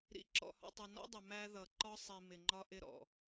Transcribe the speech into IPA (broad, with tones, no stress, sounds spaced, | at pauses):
ɾ ḭ˨ ǁ ɔ̰˨ h ɔ̰˨ tˤ ʌ˨ n ɔ̰˦ dˤ ɪ˨ m æ˦ ð ʌ˨ ǃ ɒ˦ sˤ i˨ m ɪ˨ ŋ͡ǃ ɒ˦ ʔ ɪ˦ ɾ ɔ̰˨